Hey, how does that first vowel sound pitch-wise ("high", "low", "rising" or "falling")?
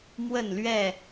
falling